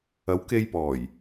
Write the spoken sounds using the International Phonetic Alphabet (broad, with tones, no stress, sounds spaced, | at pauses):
ɐ˨˧ w k e˧ j p ɔː˨˩ j